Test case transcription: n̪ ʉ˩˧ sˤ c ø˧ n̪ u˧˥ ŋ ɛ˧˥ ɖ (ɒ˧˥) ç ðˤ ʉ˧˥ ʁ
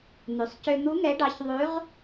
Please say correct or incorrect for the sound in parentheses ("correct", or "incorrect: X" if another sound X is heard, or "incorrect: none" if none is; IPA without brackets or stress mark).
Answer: incorrect: ɑ˧˥